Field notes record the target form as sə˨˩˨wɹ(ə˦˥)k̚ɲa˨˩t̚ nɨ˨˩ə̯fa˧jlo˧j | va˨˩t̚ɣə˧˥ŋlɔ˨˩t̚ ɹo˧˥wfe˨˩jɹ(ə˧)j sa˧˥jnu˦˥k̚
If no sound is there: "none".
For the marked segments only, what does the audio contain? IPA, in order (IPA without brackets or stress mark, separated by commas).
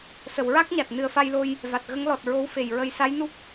a˦˥, ə˧